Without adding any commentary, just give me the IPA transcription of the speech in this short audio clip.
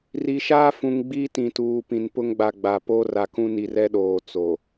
ri˨ʃaː˦fũ˨ŋ ɡ͡bi˦tĩ˨tuː˨ pĩ˨n pʊ˦ŋɡ͡ba˨ɡ͡ba˨ po˦ra˨kũ˦ni˨r ɛ˦ɗoː˨ t͡so˨

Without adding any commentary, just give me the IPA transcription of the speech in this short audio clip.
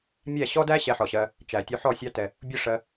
mʲæ˦˨ɕɔ˦dæ˦ ɕɛ˧ħɔ˨ɕɜ˧ | t͡ʃæ˨tʲu˧ħɔ˦˨sʲɑ˦ tɛ˧ | bʲʊ˦˨ʂɜ˧

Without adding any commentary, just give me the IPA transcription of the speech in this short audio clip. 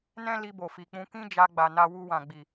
nɛ̃˦ li˧bo˨fi˨k͡pũ˧ kĩ˦d͡ʒa˧ɡ͡ba˨ na˧ wu˧wã˨ɡ͡bi˨

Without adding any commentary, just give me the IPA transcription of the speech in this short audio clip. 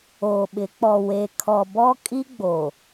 oː˨ɓɪ˨˦ k͡pɔ˨ we˨ kʰɔ˨bɔ˦ kʼi˦ɡ͡boː˨

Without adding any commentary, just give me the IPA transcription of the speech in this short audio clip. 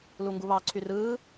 luŋɡuβɑ ǀʰyrɯː

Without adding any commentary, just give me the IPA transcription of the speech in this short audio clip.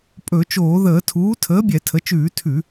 pʼɵ˧˩˧ t͡ʃoː˧˩˧ðəː˧˩˧tʰuː˩˥ tʰəː˩˥bʲɛ˧˩˧tʰə˩˧t͡ʃʉː˧˩˧ tʰʉ˧˩˧

